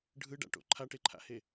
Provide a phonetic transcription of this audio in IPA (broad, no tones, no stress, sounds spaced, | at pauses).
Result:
ɖʱ ɯ ɖ a̰ ʈ o̰ ǃʰ a ʈ e ǃʰ a̰ h e